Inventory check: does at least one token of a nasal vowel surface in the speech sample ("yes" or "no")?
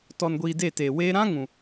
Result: yes